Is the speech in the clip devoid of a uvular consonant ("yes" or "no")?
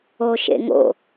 yes